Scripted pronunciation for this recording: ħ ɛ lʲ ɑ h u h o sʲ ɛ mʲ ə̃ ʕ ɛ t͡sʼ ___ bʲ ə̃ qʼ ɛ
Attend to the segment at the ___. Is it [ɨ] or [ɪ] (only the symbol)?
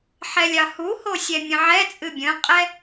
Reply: ɨ